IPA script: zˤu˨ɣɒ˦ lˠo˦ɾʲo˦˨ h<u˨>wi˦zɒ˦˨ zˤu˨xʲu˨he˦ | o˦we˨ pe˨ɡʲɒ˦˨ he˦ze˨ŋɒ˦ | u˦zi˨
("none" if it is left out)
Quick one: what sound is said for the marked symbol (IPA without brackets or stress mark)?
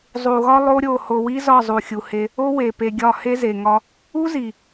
o˨